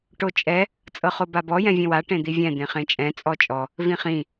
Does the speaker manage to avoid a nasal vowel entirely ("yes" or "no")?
no